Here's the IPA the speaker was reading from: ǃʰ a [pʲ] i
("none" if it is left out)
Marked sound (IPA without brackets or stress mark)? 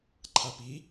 p